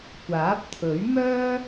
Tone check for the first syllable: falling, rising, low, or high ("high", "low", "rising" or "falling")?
rising